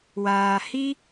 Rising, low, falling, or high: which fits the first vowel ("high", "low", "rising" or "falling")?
low